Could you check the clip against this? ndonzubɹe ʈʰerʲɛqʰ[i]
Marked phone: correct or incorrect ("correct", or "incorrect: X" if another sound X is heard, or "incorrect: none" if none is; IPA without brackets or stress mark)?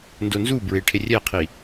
correct